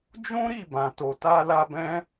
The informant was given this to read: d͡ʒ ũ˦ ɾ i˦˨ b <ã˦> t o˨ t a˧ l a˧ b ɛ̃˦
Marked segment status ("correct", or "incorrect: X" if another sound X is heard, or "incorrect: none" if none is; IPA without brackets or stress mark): incorrect: ã˨